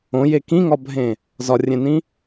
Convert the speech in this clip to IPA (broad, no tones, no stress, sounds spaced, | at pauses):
õ j e k ĩ ŋ ɒ bʱ ẽ | z ɒ rʲ ẽ n ĩ